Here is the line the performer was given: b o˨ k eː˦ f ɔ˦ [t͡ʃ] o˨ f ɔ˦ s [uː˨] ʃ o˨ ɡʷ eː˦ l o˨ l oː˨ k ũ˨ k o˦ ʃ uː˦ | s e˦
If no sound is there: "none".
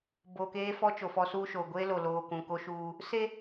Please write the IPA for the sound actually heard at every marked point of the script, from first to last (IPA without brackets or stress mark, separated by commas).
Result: t͡ʃ, uː˦